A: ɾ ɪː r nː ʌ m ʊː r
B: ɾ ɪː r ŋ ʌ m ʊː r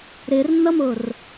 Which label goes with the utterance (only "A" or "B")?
A